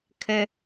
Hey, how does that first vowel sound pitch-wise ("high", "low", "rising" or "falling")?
high